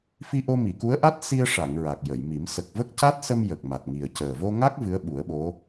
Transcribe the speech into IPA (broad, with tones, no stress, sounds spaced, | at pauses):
f i˧ ʔ o˧ m i˨˩˨ k u˧˥ ə̯ ʔ a˦˥ t̚ s i˧ ə̯ ʂ a˨˩˨ ŋ ɹ a˨˩ k̚ j ə˨˩˨ j m i˨˩˦ m s ə˨˩ k̚ v ə˦˥ k̚ c a˦˥ t̚ s ə˧ m j ə˨˩ k̚ m a˨˩ t̚ ŋ i˨˩ ə̯ c əː˨˩ v o˧ ŋ a˦˥ k̚ v ɨ˧˥ ə̯ ɓ u˨˩˦ ə̯ ɓ o˧˥